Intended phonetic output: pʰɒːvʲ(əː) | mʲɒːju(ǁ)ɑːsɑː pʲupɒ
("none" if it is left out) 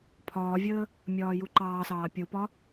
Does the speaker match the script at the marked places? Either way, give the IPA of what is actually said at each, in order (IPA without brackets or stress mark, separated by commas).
əː, ǃ